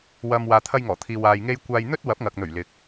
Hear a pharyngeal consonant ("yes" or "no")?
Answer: no